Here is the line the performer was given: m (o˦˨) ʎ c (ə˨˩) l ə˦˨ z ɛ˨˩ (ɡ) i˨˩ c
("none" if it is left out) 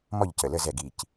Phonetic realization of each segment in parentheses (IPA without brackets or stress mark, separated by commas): ɔ˦˨, ə˨˩, ɡ